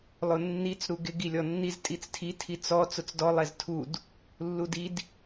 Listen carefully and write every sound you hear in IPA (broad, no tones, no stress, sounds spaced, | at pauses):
lˠ ʊ nː i t͡s ɾ u ɡ ɪ ɡ i lʲ ɔ nː i z tʼ i t͡s tʰ i tʰ i t͡s ɔ t͡s ʊ t͡s d ɔ lˠ ɛ z tʰ u d | lː u d i d